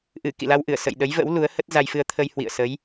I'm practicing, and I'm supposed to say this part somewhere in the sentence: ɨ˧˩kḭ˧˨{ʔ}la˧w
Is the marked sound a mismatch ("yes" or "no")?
yes